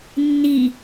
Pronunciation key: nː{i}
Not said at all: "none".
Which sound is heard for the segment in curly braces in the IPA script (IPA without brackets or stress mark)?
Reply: i